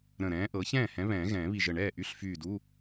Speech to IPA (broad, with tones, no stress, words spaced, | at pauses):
ɾə̃˧˩ɾɛ̃ː˨˥ʔɤ˨˥ çɛ̃ː˥˩hɛ̃˨˥βɛ̃ː˨˩˦ ɣɛ̃ː˨˩˦βi˧˩ʒə˧˩ ɳɛː˥˩ʔy˧˥˧ɬfyː˧˩du˧˥˧